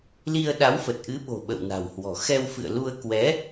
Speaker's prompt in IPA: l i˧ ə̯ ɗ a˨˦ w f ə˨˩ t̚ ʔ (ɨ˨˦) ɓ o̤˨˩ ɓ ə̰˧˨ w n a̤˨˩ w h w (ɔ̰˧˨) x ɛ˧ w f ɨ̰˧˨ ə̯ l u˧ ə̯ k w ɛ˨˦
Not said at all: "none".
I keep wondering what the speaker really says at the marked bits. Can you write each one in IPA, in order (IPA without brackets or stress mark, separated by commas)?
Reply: ɨ˨˦, ɔ̤˨˩